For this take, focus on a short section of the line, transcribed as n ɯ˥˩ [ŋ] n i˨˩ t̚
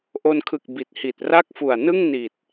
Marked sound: correct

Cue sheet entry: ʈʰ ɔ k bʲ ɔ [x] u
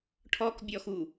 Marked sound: correct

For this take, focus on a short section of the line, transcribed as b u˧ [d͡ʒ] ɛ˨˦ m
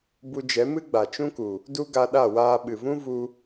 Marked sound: correct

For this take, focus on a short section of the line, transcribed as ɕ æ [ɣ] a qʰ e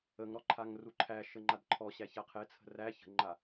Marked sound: incorrect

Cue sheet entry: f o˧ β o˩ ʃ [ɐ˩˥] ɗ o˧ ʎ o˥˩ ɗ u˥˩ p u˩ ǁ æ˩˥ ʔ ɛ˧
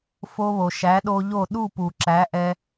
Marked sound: incorrect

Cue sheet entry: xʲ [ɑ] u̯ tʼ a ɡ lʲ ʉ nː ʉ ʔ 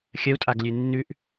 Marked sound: incorrect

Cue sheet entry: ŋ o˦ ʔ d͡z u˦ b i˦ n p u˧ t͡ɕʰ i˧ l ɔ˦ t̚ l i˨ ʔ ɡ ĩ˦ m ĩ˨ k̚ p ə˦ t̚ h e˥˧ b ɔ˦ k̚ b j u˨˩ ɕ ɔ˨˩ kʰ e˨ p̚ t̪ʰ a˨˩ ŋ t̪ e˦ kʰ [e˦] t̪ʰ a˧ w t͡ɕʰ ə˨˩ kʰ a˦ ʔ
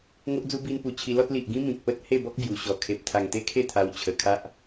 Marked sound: incorrect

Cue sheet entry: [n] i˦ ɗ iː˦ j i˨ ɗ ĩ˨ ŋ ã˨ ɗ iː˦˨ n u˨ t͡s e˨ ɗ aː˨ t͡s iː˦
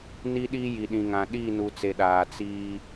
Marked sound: correct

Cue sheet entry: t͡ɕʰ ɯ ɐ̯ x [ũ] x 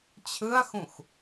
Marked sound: correct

